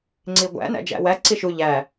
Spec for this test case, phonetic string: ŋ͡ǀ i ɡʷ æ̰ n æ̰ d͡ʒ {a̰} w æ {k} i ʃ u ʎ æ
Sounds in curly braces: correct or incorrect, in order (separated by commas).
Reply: incorrect, incorrect